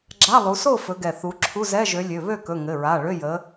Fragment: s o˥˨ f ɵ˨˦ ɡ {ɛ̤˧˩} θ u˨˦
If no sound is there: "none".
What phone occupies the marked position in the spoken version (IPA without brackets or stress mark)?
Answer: ɛ˧˩